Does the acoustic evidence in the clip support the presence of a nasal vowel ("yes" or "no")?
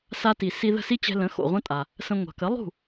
yes